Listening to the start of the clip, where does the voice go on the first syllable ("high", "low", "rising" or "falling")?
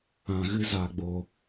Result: low